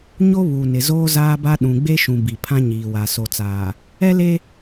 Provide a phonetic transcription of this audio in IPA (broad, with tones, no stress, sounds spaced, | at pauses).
ɲ o˦ β u˨ n ɪ˨ z oː˦ z aː˦ b a˦ ɗ ũ˨ ɡ͡b e˦ ʃ ũ˨ b i˨ pʰ ã˦ ɲ iː˨ w a˨ s o˨ t͡s aː˨ | ɛ˦ l e˦